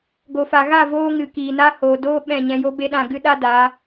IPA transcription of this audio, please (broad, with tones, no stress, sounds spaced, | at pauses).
ɡ o˨ f a˨ ɣ a˦˨ v oː˧ ŋ ɨ˨ k iː˨ n a˧ h oː˨ d oː˦ ɓ ɛ̃˦˨ ɲ ɛ̃˧ j o˦ b e˦ ɗ ã˦˨ ɡ ɨ˦ ɗ a˦ d a˨˦